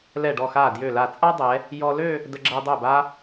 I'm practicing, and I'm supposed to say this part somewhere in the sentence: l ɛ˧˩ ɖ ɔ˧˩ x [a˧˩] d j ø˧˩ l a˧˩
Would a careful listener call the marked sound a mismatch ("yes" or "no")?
no